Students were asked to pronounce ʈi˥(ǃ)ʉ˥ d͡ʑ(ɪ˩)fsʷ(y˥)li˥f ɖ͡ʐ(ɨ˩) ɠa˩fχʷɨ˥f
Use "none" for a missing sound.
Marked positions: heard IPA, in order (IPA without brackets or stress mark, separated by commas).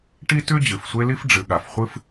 t, ɨ˩, e˥, ɨ˩